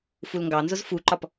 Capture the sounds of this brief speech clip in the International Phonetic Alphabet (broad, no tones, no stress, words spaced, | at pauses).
fulŋɡɑnzʊz fuǃɒp